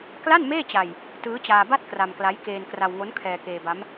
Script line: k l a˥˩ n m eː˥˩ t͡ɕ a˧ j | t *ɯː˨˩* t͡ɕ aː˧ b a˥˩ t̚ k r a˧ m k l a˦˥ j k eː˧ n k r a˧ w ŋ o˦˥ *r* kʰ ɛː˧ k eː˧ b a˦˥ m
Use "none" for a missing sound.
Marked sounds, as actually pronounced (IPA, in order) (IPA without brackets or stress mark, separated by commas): ɯː˦˥, n